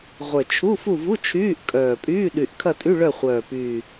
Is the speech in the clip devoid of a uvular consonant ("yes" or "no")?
no